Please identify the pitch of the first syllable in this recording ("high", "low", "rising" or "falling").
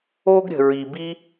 high